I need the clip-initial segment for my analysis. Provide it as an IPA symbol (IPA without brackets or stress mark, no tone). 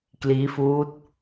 k